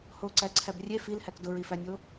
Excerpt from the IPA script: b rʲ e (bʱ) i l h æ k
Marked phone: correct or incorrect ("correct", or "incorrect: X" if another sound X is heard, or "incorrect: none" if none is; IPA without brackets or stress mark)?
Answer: incorrect: f